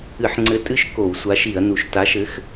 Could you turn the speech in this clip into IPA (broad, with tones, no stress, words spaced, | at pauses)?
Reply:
ɨ˧˩˧ħŋ͡ǀɘ˨˥ tʼɨ˦ʃ ko˧˩˧wsʷa˨˥ʃi˧˩˧ɐ̯nu˨˩ʃ ta˨˥ʃɘ˨˥x